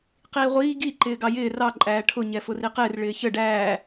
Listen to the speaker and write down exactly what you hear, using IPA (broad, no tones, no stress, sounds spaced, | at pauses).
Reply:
q iː ʁʷ iː ɡ i ǃ ɪː ɡ ɑ j ɪː r ɑ ǃʼ æː ʈʰ ʊ ɲ ɛ f ʊ r i q ɪː r ɭ ɪː ç ə ɖ æː